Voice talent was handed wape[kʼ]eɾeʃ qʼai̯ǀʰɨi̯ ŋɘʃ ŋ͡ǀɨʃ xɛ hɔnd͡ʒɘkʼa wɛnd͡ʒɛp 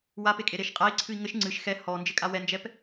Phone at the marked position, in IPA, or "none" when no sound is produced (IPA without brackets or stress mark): kʼ